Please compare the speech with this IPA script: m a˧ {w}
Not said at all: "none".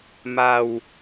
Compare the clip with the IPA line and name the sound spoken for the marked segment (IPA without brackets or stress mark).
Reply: w